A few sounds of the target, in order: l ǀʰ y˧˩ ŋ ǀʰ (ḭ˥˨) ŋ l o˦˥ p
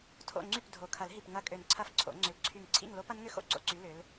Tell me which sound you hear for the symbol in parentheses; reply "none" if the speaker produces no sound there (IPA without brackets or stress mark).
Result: ḭ˥˨